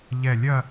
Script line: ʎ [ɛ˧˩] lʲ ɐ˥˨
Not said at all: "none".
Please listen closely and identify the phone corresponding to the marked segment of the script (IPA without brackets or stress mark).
ɛ˧˩